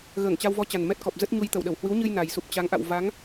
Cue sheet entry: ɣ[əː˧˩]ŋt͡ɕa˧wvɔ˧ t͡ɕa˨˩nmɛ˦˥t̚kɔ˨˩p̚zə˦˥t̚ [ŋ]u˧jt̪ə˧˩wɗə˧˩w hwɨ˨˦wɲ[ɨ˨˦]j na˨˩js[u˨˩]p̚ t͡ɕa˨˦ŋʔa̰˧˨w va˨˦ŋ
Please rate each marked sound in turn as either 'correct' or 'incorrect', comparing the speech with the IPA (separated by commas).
correct, incorrect, incorrect, correct